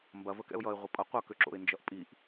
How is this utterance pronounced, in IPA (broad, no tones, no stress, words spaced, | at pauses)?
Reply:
mbɐvə kɛ̰ʊ̯jʌɪ̯ ʁʷɘpʼʌ qʷʌkøǁo̰ɪ̯ nd͡ʒʌʔpʼiʔ